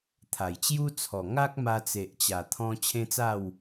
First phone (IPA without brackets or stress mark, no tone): t̪ʰ